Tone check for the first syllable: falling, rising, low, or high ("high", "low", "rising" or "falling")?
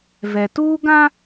low